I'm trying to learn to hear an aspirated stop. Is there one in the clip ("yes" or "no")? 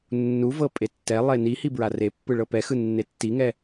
no